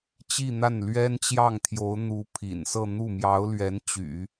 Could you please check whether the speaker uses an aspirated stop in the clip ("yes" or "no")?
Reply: yes